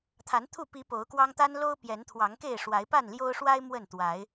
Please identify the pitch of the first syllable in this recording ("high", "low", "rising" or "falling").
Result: rising